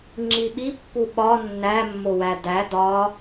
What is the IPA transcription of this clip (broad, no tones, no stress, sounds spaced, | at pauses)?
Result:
ŋ͡ǁ i ɓ i pː u ɓ ɒ nː æ mː o w æ d æ d ɒ